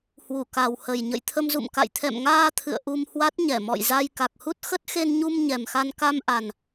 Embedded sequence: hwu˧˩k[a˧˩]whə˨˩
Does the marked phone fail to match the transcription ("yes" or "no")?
yes